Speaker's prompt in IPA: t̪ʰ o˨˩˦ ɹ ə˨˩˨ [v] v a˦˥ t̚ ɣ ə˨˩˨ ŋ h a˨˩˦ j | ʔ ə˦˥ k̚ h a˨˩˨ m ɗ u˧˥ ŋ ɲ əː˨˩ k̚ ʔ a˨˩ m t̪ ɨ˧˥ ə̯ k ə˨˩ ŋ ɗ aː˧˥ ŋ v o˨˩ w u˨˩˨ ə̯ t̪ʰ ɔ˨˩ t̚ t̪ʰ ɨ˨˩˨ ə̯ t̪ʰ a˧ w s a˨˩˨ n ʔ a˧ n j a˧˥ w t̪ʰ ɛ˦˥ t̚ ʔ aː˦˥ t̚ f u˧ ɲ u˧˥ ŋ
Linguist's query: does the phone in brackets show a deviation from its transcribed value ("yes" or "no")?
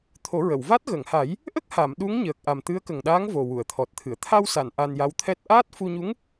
yes